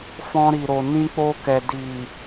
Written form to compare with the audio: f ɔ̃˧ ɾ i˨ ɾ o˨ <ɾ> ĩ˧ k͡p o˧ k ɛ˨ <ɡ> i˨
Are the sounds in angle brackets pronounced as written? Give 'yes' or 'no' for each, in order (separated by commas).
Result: no, no